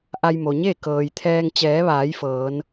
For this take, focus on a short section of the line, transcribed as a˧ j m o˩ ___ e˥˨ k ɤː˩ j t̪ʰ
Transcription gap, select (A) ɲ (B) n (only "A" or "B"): A